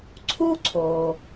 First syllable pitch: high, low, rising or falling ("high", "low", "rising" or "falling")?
high